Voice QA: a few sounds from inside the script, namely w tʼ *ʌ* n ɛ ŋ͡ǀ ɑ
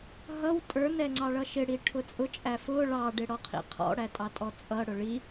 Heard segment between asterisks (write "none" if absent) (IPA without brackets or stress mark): ə˞